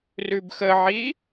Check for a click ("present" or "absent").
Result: absent